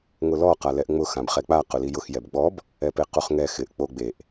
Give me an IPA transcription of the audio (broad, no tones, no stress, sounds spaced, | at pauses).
ŋ ʊ l ɔ q a l ɛ ʔ ŋ͡m ʊ x ã b χ ɛ k͡p a q ʊ l i j ʊ x j ɛ b ɡ͡b ɔ b | ɛ p e q u χ ŋ ɛ x ɪ ʔ k͡p o ɡ͡b e ʔ